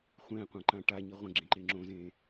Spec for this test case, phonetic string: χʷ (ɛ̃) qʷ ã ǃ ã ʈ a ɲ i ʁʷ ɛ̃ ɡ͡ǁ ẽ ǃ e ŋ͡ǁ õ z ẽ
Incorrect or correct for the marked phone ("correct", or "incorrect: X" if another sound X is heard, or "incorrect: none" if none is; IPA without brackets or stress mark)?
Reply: correct